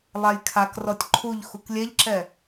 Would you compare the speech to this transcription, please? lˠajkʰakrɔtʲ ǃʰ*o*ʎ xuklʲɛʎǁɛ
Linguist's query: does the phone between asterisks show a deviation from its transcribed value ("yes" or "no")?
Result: yes